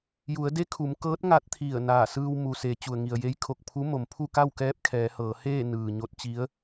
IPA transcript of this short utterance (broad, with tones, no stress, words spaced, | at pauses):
ju˩˧ə̯de˧˥ kʰu˩˧mkɤː˧˥t̚ ŋa˧˥t̚ t̪ʰi˧˩ə̯ naː˧˩sɯː˧w mu˩se˩˧ t͡ɕu˩ə̯ŋi˩ə̯je˧˥j kʰo˧˩k̚pʰu˧˥ mo˩mpʰu˥˨ka˥˨wkɛː˧˥p̚ kʰɛː˩˧hɤː˩˧heː˥˨ nɯː˩ɲo˧˥t̚t͡ɕi˧˥ə̯